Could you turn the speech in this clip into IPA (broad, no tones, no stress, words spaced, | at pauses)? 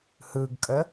hɯɡkʼə